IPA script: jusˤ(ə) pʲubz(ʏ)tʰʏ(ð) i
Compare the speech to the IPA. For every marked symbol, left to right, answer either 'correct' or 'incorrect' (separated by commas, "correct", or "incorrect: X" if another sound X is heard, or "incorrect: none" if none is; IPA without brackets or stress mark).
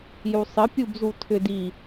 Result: correct, incorrect: u, incorrect: d